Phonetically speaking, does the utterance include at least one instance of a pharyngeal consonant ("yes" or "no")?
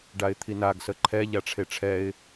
no